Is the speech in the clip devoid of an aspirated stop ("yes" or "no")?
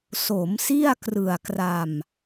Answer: yes